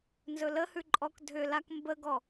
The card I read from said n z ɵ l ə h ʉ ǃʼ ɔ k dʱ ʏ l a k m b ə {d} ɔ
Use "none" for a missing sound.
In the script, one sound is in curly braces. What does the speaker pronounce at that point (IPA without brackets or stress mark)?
ɡ